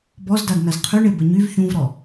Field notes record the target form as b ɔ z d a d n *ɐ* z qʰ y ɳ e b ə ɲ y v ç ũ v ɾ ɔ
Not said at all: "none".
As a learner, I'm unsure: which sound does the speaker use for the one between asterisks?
ɐ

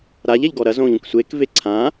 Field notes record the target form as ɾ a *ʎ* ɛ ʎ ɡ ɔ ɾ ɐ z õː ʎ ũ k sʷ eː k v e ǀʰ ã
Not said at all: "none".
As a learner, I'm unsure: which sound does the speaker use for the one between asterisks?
ʎ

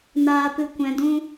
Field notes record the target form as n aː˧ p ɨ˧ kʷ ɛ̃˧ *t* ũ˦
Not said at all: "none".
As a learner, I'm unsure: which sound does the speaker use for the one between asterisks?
d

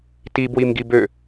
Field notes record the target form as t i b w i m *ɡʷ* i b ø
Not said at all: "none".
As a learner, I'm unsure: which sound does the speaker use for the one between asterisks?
ɡ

